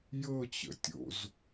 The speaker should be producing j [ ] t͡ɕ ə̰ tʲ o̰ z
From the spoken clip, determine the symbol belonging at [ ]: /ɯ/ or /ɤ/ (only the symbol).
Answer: ɤ